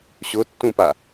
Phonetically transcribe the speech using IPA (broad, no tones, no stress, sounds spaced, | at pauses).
ɕ ʊ tː ũ p a